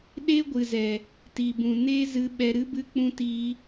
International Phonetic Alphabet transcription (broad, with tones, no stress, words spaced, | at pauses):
ɗe˦ɡʷɨ˨zɛ˨ | ti˨bũ˨ neː˦zɨ˧ɓɛ˧ ɾɨ˦bɨ˦k͡pũ˦tiː˦